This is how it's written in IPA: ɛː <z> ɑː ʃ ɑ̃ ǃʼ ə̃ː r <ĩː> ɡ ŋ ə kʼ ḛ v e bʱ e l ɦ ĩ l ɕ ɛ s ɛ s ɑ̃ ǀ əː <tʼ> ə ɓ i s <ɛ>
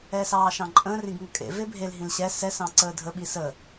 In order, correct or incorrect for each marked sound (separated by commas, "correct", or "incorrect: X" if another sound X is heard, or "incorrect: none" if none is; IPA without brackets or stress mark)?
incorrect: s, incorrect: ĩ, incorrect: dʱ, incorrect: ə